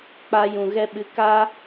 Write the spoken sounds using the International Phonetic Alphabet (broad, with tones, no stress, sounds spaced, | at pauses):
k͡p a˧ j ũ˨ ɣ ɛ˧ ɓ ɨ˨˦ k a˦